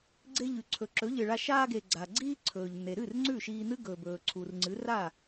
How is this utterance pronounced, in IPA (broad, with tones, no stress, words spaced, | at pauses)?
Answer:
ɡ͡ǀe˧ʎʉ˩ǀʰɵ˩ ǁɵ˩˥ʎɨ˩ɭa˧ ʃaː˧ɡe˩ ɡ͡ǀa˩ ɡ͡ǀiː˧ ǀʰɵː˩ʎn̪e˩ɾɨ˥˩r ŋ͡ǀʉ˥˩ʃiː˧n̪ɨ˥ ɡɵː˩bɵː˩ǀʰu˩rŋ͡ǀɨ˩˥ ra˥˩